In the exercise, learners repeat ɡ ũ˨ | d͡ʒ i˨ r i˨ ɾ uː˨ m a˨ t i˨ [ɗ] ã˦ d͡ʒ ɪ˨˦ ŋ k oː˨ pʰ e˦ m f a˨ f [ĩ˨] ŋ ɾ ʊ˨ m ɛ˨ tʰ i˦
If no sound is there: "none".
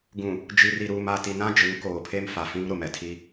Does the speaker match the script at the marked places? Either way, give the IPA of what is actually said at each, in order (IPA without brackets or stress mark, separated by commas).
n, ĩ˦